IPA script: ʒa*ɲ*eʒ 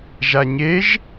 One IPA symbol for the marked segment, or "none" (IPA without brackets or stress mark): ɲ